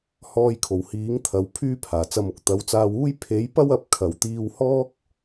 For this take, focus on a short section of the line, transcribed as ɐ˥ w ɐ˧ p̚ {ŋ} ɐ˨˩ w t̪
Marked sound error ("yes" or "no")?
yes